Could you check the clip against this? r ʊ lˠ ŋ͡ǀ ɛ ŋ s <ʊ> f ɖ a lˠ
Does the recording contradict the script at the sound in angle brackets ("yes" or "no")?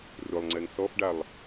yes